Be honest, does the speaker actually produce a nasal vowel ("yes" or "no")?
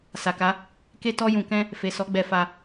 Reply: yes